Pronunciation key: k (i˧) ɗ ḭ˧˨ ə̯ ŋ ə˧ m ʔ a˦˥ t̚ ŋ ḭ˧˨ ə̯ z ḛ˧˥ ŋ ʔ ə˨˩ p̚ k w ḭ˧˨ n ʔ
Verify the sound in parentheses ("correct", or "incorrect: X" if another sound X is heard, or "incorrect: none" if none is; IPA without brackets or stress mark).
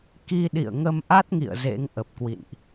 correct